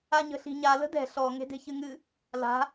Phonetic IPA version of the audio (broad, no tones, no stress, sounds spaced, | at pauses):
a ɲ ə̤ ɬ i̤ ɲ a l ə̤ d ɛ̤ ɬ ɔ ŋ e̤ d e̤ ç ɨ ŋ ɨ | l a̤